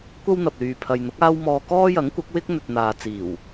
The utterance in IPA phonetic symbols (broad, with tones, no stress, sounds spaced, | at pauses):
kʷ ɐ˥ w n̪ ɐ˨ p̚ l yː˨ pʰ ɐ˨ j n̪ ʊ˨˥ k̚ aː˥ w m ɔː˧ k ɔː˥ j ɐ˨˥ ŋ kʷ ɐ˨˥ k̚ w ɪ˥ k̚ n̪ ɵ˨ t̚ n̪ aː˨ t͡s iː˨˩ w